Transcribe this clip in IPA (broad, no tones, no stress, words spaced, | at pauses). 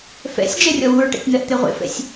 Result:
fɛ̰sʲ d͡ʒɛrʲɔwuɹʈɛ̰tʲ n̪ɜʔt̪eʁʷḛfɛ̰sʲ